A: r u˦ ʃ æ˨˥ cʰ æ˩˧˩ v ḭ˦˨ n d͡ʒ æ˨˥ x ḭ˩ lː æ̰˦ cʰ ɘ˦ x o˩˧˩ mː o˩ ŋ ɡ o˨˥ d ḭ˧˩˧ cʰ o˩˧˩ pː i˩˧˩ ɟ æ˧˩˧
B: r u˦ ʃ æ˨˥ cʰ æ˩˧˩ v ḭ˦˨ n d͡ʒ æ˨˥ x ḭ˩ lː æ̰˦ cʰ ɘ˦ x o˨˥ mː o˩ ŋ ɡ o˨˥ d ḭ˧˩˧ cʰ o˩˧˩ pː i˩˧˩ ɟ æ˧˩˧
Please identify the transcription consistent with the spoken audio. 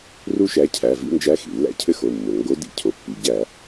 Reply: A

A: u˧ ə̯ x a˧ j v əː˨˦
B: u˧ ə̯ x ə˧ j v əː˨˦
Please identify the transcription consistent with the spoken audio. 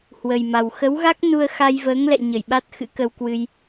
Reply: A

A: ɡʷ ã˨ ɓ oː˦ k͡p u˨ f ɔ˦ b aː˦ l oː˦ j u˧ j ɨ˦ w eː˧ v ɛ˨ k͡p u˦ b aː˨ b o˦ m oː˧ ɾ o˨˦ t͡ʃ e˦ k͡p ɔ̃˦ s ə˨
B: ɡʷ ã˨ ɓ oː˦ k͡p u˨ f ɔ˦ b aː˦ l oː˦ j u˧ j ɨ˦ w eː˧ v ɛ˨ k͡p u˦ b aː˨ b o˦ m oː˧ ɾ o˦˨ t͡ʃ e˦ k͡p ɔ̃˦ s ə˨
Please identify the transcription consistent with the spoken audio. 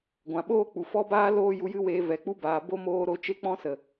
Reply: A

